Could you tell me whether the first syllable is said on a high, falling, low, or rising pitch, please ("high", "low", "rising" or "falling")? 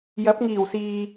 rising